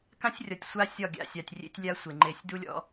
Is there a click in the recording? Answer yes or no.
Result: yes